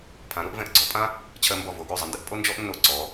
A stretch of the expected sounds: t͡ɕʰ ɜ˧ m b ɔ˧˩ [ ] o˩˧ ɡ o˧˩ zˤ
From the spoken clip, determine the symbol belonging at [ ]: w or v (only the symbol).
v